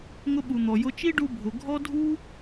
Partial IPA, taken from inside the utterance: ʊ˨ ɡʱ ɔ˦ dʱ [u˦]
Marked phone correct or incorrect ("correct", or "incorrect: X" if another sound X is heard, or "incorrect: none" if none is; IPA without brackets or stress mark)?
correct